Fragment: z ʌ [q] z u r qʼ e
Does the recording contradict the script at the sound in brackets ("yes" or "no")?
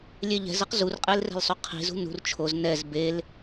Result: no